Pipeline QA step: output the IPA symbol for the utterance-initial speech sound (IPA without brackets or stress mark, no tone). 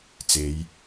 t͡s